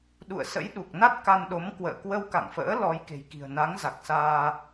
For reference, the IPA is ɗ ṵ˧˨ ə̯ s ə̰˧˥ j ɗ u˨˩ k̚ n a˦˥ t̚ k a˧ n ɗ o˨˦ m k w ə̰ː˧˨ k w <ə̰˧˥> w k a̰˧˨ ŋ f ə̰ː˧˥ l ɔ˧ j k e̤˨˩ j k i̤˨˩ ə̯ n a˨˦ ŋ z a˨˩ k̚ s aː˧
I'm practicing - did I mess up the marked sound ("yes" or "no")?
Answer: yes